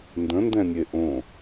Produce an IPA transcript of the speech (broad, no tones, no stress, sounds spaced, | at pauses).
n d ə̃ n d ɛ̃ nʲ e ʔ õ